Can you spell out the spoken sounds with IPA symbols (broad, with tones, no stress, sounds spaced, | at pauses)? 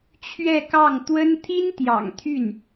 t͡ɕʰ ɥ ɛ˥˧ k ɑ˥˩ ŋ t̪ w ə˥ n t̪ʰ i˥ n t̪ j ɑ̰˨˩ ŋ t̪ʰ y˥˩ n